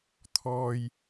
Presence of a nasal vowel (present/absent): absent